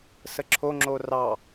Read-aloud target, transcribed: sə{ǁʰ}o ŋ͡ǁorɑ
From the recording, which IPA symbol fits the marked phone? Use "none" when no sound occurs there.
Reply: ǁʰ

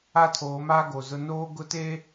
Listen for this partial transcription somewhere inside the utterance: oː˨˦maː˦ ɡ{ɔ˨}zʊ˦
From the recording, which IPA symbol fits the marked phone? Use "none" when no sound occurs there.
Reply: o˨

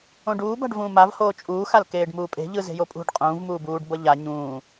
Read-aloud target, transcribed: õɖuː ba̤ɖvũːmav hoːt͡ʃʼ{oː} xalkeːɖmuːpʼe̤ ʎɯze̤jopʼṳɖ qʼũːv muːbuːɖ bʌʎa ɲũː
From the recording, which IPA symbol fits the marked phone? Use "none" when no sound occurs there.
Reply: uː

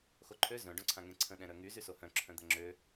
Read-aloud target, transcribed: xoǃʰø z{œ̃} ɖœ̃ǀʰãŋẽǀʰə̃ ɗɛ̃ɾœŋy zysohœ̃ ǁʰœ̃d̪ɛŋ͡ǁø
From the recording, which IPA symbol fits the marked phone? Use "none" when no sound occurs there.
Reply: œ̃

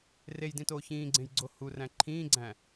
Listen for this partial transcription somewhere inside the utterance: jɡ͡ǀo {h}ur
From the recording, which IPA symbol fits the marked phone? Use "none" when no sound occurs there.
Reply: h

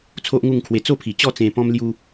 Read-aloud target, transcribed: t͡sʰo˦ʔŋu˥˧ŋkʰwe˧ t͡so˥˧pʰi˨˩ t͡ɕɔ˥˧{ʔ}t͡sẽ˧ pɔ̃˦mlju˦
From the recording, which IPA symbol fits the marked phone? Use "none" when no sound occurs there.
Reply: none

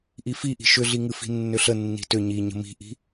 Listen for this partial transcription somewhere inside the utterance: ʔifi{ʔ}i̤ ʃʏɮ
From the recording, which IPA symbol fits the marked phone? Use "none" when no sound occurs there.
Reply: ʔ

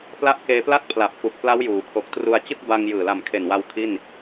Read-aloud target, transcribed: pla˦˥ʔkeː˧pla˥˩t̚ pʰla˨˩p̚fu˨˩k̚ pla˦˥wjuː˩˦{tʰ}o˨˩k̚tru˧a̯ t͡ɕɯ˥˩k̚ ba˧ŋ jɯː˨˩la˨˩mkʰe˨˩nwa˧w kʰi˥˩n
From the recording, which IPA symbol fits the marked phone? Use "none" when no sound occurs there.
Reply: kʰ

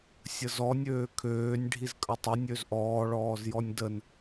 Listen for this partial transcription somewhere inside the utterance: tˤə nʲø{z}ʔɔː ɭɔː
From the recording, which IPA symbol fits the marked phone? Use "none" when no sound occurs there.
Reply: z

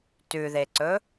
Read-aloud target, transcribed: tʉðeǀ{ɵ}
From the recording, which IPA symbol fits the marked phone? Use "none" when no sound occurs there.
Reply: ɵ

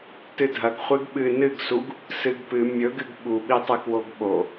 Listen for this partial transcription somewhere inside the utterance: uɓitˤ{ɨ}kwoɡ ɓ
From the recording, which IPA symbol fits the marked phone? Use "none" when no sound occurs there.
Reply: ɨ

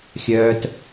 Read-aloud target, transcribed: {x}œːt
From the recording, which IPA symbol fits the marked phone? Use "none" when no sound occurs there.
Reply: xʲ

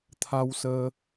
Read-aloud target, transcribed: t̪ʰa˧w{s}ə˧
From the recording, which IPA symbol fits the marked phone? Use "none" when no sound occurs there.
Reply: s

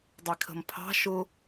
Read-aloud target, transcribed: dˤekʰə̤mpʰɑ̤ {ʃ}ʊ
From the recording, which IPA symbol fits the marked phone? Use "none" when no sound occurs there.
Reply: ʃ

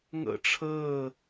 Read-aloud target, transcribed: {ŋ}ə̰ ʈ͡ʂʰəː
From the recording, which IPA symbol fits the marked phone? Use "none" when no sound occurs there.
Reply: ŋ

